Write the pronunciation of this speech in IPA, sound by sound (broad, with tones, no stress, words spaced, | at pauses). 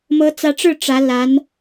mɤ˧˥t͡sä˧˥ʈ͡ʂɻ̩˥˩ ʈ͡ʂä˧˥la˧˥n